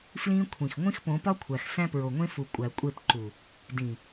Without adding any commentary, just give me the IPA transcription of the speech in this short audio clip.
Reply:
flĩ˦ kʷʰĩ˨x ŋʷĩ˦xpõ˨˦pɒ˦kʷʰæ˨x sæ̃˦pɹo˨ŋʷẽ˦fu˨ kʷʼæ˨kʷʼe˦˨pǃu˨ | dĩ˨

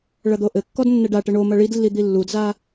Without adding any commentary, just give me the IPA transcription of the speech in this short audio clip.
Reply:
ɭɐd̪oʔɘkːɔd nːɛɖaʈɘ ɳo mɐɭidlːi d̪ilːudza

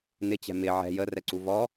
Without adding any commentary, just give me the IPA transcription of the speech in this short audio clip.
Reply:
nɪt͡ɕɛ̤ mɪ ʕɛ̤ jərɛǀu vɔ

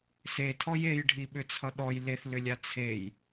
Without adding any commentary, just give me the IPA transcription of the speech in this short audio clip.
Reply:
setʰɔj ejɖʱiɓʏt͡sʰʌ ɗɔj leθlʏlʲa t͡sʰej

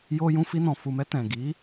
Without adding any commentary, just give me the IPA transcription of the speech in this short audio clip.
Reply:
jo˧jũ˧fi˧nɔ̃˨ fu˨mɛ˧ tɛ̃˨ɡi˨˦

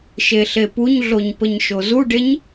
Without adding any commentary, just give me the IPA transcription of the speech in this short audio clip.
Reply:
ʃeɬepuɲɮoɲ pəɲʃozuɖeɲ

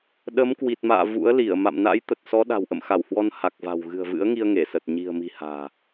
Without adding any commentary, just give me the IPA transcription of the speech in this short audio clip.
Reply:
ɗə˨˦mkwi˨˩t̚ma̰ː˧˨ vṵ˧˥ə̯li˧˩ə̯ ma̰˧˨mna̰˧˥jt̪ə˨˩t̚ sɔ˨˦ɗa̤˨˩w ʔə̰˧˨mxa˧˩whwɔ˧n ha˨˩k̚va̤˨˩w ɣɨ̤˨˩ə̯vɨ̰˧˥ə̯ŋi˧ə̯ ŋe˧˩sə˨˩t̚ ɲi̤˨˩ə̯mi̤˨˩ ha̤ː˨˩

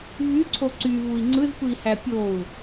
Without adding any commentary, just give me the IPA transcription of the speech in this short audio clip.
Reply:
vyǀʰo ǀyvui̯ ŋ͡ǀɯzpɯi̯hæ pʲou̯

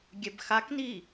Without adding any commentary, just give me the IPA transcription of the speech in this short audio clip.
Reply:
ɡʲɛbxakni

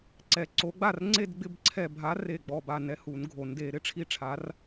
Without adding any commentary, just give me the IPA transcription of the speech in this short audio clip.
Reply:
ǀɛ˨˩˦ǀo˨˥ɡ͡ba˥˨r ŋ͡ǀe˥˨dɡ͡bɪ˥˨bǀʰɛ˧˩ bʱa˨˥ re˧˩ɡ͡bɔ˧˩ba˧˩nɛ˨˩˦ hu˨˩˦nɡʱo˨˩˦nde˨˩˦ ɾɪ˨˩˦ʈ͡ʂʰi˥˨ʈ͡ʂʰa˨˥r

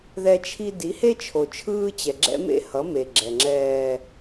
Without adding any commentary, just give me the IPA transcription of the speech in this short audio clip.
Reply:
ðɛ˦t͡ʃʰi˦ di˨˦he˦ t͡ʃʰo˨ t͡ʃʰɯː˦t͡ɕɛ˨ ɡ͡ǁɛ̰˦mḛ˦hʌ˨˦ me˨ɡ͡ǁɛ˨ŋ͡ǁɛː˦

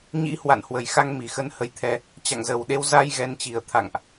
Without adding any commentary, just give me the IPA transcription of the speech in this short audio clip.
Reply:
ɲḭ˧˥hwa̰˧˨nhwə˨˩jxa˧ŋ mi˨˩xə˧nhə˧jt̪ʰɛ˧ | t͡ɕa̰˧˨ŋzə˨˩wɗe˧w za˧j ɣɛ˧n t͡ɕi˨˩ə̯t̪ʰa̰˧˨ŋʔ

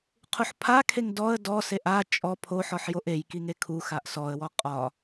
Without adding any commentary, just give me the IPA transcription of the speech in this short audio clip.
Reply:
qʰuħpʰakʰeŋ dɔə̯ dɔseʔ a t͡ʃʼɔ pʰoħɔħ joʔejki ŋekʰuxaʔ sɔə̯wɔ qʼɒ

